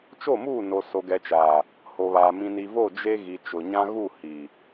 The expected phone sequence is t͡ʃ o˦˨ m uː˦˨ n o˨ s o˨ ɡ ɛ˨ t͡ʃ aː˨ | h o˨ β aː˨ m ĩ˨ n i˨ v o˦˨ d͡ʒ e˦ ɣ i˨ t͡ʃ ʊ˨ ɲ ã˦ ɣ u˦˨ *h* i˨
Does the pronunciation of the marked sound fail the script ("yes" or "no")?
no